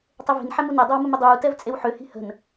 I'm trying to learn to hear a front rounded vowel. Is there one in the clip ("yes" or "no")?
yes